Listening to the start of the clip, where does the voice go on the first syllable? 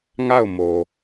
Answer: falling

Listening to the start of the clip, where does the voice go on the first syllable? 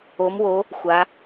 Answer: rising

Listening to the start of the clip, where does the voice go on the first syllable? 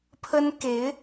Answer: high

